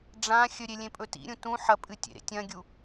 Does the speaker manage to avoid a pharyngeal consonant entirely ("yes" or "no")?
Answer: no